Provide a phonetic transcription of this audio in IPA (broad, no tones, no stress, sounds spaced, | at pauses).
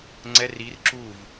ŋ͡ǀ ɛ r i r ǁ u v